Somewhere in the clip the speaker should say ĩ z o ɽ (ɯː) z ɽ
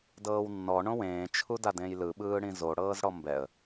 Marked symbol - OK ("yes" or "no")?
no